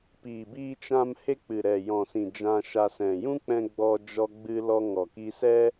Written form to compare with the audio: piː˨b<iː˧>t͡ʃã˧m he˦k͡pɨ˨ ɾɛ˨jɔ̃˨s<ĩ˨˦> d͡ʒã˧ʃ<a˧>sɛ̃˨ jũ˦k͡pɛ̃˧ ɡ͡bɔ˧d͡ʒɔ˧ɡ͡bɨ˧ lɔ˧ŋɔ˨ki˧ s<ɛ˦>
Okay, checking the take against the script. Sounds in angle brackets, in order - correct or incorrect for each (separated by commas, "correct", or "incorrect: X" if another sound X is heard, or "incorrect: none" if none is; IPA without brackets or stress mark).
correct, incorrect: ĩ˨, correct, correct